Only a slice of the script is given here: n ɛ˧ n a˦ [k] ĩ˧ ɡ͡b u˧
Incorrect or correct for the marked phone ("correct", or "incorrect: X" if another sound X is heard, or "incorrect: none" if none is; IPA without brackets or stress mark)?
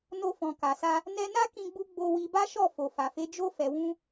correct